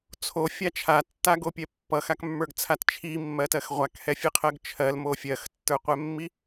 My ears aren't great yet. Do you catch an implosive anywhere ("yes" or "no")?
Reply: no